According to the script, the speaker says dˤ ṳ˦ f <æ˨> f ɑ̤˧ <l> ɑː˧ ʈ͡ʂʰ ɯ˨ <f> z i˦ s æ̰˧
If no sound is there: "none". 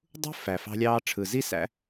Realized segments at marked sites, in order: æ˨, lʲ, none

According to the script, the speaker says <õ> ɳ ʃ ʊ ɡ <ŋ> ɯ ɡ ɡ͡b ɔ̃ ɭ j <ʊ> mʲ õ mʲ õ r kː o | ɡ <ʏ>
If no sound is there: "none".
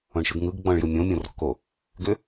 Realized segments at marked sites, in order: õ, ŋ, ɯ, ʏ

